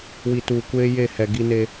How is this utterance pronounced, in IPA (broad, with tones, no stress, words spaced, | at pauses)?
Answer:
wi˨tuː˨ kʷeː˦je˦˨hɛ˨ ɡi˦ne˦